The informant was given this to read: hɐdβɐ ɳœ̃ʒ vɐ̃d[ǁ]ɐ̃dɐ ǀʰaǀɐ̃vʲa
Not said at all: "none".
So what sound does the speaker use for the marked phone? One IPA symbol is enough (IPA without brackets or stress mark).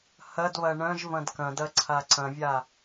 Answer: k